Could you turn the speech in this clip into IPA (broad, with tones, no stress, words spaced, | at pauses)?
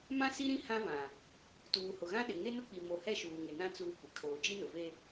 mã˦ si˦ɾĩ˦ hã˦vã˨ | tuː˨hʊ˨ɣã˦ɗɪ˨ ŋe˦nʊ˦k͡pi˨ mo˨ hɛ˦ʃuː˨ŋɪ˨nã˦ t͡suː˦kʷɪ˨ kʰoː˨d͡ʒi˦nʊ˨ve˦